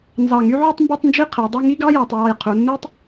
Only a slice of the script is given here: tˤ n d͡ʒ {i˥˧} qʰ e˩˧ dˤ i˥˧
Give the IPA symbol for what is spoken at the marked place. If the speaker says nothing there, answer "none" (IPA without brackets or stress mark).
i˥˧